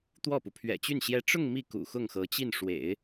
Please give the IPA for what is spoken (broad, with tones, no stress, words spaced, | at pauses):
t̪wɔ˥˩pu˩ pʰɥɛ̰˨˩t͡ɕy˥˩n ɕjɛ˥ ʈ͡ʂʊ˥˧ŋ mi˥˩kṵ˨˩ xʊ˥˩ŋxɤ˧˥t͡ɕi˥˩n ʂwḛ˨˩˦ɪ̯